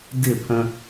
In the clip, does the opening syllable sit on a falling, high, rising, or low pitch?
falling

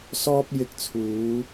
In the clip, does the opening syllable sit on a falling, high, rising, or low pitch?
high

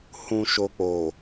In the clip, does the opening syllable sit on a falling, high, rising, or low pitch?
low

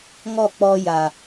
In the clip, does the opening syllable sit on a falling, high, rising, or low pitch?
falling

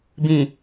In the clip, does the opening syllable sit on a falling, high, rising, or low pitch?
low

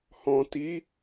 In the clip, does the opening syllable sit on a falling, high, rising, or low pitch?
low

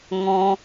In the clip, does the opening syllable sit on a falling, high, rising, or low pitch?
high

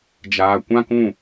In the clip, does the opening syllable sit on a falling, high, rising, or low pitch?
low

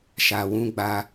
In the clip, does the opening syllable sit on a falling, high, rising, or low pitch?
low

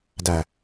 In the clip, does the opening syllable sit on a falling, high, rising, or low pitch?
low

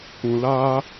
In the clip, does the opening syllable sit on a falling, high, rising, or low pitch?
low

